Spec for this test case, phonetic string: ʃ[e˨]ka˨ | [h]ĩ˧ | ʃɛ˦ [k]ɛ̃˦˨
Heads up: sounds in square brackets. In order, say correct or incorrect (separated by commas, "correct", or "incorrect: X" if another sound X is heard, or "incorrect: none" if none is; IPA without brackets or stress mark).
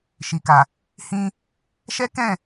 incorrect: i˨, correct, correct